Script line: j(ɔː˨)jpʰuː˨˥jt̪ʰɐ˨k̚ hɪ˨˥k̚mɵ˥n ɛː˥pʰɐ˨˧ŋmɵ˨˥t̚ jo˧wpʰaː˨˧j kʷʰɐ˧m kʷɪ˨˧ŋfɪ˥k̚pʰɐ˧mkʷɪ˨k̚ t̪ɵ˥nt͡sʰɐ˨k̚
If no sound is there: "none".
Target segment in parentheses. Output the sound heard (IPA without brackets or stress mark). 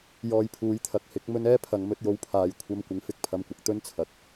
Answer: ɔː˨